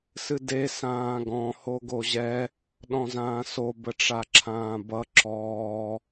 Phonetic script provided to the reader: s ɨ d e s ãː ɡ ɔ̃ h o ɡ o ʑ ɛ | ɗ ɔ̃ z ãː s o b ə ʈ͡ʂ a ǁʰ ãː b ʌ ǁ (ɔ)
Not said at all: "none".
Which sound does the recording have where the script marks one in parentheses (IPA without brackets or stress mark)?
ɔː